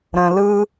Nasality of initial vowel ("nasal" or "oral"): nasal